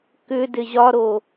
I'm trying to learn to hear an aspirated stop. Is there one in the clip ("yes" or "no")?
no